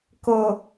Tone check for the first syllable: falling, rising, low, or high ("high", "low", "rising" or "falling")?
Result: low